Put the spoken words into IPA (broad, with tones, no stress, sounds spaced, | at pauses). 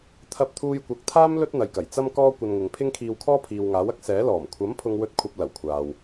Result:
t̪ʰ ɐ˧ p̚ t̪ʰ uː˧ j kʷ ɐ˨˥ k̚ t̪ʰ aː˥ m l ɵ˥ t̚ n̪ ɐ˨ j k ɐ˨˩ j t͡s ɐ˧ m k ɔː˧ kʷ ɐ˧ n ŋ ɪ˨˧ ŋ pʰ ɪ˥ ŋ kʰ iː˧ w kʰ ɔː˥ pʰ iː˨ w ŋ aː˨˥ w ɐ˥ k̚ s ɛː˨˥ l ɔː˨˩ m kʷʰ ɐ˨˥ m pʰ ʊ˧ ŋ w ɵ˧ t̚ kʷʰ ɐ˧ p̚ l ɐ˨˩ w kʷʰ aː˨ w